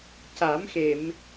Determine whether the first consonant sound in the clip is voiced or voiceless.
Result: voiceless